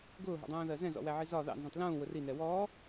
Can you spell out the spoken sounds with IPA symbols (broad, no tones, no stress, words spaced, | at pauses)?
ɡʊːɦɔ̰dˤũːðɜ zɛ̃zɔ̰wæʕi zɒ ðɑ̰nzũtˤ lũːwʊr inɛ wɔː